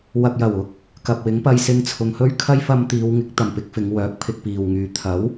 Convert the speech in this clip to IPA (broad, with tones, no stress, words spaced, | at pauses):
wɐ˨k̚jɐ˨˩wʊ˨˥k̚ | kɐ˨p̚wɪ˨˥ŋpɐ˧j sɪ˧ŋt͡sʰʊ˨˧ŋhɵ˥ɥ kʰɐ˥jfɐ˧mt̪iː˨˧wŋɪ˨˥k̚ t̪ɐ˨mpɪ˧k̚fɪ˨˧ŋwœː˨˥k̚ pʰɪ˧k̚piː˨wŋyː˨˧ t̪ʰɐ˨˥w